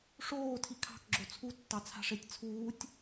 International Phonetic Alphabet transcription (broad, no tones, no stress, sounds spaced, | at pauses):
ʂ oː tʰ i kʰ ɑ̤ k ɡ͡ǁ o t͡sʰ u tː ɑ t͡sʰ a̤ ʂ e tʲ t͡sʰ uː tʲ